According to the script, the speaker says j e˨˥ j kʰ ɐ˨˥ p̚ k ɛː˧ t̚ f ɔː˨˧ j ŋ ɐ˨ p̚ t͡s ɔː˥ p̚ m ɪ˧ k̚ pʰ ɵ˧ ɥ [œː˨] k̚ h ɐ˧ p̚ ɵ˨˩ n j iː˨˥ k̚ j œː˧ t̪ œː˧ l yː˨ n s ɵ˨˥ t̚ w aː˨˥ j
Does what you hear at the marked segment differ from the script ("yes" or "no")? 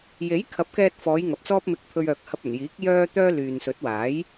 no